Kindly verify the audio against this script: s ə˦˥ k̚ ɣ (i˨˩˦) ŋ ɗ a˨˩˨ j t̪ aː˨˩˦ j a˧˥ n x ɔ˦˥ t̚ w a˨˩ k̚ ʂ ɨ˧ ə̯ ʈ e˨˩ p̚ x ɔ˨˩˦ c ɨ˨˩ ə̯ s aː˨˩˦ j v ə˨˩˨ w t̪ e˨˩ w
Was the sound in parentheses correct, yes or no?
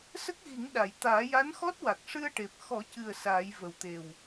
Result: yes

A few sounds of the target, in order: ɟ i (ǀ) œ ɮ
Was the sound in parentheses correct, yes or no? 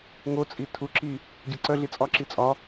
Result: yes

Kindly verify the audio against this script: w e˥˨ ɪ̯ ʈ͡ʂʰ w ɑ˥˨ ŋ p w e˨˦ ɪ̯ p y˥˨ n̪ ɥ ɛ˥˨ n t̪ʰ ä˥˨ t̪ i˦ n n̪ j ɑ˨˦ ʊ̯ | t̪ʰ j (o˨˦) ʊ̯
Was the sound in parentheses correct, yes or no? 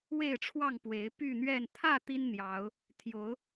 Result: yes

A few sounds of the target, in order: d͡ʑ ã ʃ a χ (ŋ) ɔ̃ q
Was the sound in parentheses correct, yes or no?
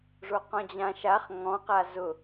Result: yes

